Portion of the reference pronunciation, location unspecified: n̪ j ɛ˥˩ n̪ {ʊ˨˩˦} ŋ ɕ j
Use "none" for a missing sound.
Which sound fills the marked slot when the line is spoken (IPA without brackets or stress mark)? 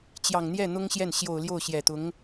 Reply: ʊ˥